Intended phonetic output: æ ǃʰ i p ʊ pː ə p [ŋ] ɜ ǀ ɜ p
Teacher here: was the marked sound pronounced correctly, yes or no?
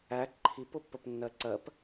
no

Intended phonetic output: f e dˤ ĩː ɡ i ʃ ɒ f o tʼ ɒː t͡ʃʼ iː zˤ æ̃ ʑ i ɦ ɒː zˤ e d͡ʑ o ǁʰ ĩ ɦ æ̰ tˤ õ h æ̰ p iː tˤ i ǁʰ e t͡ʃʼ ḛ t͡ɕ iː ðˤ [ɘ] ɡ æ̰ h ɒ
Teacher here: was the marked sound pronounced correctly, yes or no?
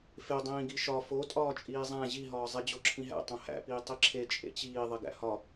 no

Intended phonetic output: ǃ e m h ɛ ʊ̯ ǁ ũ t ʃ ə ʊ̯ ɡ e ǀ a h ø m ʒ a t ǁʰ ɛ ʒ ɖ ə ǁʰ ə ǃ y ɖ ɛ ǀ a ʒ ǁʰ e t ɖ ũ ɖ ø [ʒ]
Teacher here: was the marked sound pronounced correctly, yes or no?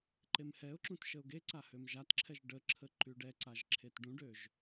yes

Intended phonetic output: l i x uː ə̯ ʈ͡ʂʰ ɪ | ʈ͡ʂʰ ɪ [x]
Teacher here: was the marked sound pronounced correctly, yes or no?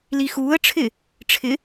no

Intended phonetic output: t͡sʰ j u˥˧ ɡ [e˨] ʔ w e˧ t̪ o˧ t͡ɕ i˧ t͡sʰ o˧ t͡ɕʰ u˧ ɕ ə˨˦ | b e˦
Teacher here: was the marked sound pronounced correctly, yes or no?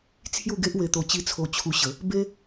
no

